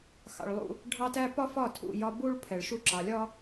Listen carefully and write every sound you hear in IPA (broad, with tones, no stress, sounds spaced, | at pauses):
x ɑ̰˨ ɭ lˠ ṵ˦ | ɖʱ ɑ˦ t æ˦ p ɒ˦ f ɒ˦˨ tʰ ṵ˦˨ j ɒ˦ b u˦ ɭ pʰ ɛ˨ ɭ ʃ u˦ ǁ ɑ˨ lʲ ɒ˦